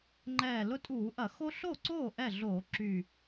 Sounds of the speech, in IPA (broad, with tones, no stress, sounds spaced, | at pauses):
ŋ͡ǃ ɛː˨˩ l ʊ˦ tʼ uː˧˩˧ ʔ ɐ˧˩˧ x o˦ ɬ o˥˩ ǀ oː˥˩ ʔ ɛ˥˩ ɮ oː˧˩˧ ǁ y˨˩